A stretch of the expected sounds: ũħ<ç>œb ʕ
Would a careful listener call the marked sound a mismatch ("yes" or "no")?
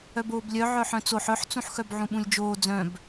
yes